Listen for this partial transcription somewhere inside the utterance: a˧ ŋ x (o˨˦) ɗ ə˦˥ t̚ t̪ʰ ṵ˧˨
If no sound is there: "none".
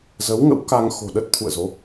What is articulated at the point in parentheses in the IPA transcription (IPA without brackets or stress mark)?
o̤˨˩